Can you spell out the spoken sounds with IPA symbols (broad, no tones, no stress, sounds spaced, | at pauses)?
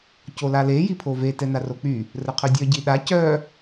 c o l a l e j i pʰ o v e t ɛ n a r o k͡p y | r ə qʰ ø dʲ œ ɟ i ɗ a c œ